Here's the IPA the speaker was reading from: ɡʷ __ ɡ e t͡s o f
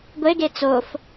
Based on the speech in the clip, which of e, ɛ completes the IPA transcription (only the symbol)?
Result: e